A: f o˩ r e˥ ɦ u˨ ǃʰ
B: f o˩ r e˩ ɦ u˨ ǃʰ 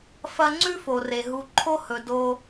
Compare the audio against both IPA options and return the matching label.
B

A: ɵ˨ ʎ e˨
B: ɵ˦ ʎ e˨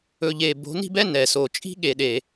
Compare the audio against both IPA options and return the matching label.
A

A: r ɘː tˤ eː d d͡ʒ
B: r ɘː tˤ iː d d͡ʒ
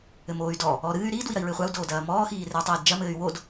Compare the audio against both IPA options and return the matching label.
B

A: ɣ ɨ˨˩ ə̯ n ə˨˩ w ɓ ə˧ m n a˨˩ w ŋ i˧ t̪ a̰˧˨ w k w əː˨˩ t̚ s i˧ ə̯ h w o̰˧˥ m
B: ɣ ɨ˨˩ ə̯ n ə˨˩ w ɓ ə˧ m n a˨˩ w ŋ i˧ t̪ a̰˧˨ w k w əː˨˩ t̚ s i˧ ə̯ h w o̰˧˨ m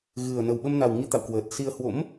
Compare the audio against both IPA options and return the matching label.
A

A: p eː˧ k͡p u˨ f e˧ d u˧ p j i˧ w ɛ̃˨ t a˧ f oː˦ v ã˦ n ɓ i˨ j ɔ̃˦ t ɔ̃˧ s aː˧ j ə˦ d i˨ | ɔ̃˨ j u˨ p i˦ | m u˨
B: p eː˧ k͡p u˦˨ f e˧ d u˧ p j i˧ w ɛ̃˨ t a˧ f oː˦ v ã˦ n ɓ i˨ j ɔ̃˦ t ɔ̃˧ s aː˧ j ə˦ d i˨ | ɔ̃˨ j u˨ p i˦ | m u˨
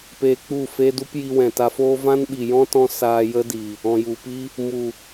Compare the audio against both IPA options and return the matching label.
B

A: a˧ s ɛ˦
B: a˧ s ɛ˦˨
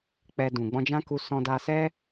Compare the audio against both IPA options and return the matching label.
A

